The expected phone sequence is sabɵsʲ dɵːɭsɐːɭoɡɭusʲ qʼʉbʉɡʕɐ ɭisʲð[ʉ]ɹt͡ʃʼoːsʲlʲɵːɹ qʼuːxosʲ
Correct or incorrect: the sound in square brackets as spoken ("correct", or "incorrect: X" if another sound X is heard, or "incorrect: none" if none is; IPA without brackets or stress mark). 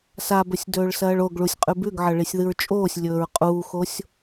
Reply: incorrect: ɨ